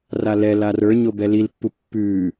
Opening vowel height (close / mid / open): open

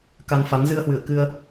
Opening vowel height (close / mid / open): open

